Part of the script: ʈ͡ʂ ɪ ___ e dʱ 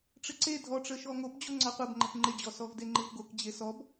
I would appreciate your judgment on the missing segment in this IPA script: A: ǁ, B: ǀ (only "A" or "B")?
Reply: B